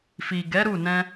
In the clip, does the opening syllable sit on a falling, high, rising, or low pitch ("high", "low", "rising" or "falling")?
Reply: low